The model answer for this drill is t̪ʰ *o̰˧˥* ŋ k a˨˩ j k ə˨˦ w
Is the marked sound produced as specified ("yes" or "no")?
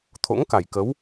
yes